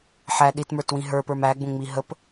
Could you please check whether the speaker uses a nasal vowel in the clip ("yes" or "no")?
yes